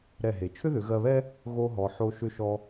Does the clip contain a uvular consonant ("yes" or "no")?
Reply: no